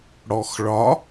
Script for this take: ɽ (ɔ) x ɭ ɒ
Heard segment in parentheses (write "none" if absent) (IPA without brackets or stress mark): ɔ